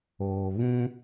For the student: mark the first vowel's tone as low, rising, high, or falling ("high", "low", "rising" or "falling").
low